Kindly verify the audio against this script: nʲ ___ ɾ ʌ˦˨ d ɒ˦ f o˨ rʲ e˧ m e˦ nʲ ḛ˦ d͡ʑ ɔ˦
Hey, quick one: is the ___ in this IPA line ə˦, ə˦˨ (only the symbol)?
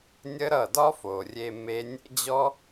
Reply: ə˦